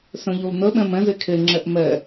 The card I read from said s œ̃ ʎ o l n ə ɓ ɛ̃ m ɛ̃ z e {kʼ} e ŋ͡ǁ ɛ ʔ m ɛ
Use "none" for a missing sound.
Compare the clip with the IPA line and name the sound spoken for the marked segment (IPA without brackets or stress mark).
kʰ